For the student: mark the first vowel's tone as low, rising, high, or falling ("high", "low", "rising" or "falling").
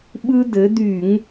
high